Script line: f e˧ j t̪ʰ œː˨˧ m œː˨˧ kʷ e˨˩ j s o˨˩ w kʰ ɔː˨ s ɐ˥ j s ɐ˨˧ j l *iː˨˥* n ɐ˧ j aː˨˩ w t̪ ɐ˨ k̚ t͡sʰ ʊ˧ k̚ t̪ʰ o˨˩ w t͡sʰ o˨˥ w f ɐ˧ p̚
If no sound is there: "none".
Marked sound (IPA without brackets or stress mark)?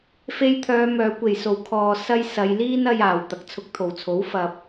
iː˥